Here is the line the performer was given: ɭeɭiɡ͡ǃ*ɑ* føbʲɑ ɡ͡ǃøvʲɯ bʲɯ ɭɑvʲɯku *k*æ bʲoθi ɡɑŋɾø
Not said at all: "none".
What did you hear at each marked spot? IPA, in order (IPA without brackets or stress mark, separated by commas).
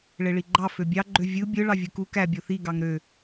ɑ, k